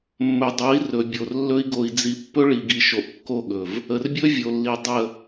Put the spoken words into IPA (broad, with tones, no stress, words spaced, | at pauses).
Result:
mːɵ˨dˤo˨˦i̯ rɵ˨bʲo˨rlːɵ˦i̯ ɡo˨i̯d͡zi˨ pːɵ˦ɭi˨ɡi˨ʃo˨ʔ kːo˦˨ɠɵ˨v | ə˨rbʲɵ˦ vʲo˨lːi˨ dˤə˦˨